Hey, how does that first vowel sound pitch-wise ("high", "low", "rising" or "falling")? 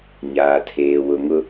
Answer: low